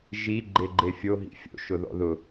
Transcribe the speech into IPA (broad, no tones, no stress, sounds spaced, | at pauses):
ʒ i ɡ͡ǃ e ɡ͡ǃ e fʲ o ɦ ḭ fʲ o̰ ʃ ʊ ð ɔ̰ ð ʊ